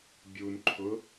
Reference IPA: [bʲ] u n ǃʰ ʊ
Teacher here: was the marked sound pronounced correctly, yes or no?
yes